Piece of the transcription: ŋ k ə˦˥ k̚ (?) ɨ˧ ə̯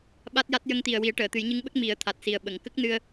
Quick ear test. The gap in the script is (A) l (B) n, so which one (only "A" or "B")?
B